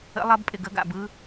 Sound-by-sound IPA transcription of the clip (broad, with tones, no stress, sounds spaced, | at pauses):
ə̰˦˥ lˠ ɐ˦˥ b pʼ ɪ˥˩ ɡ ə˦˥ ɡ a̰˥˩ b ɯ˦˥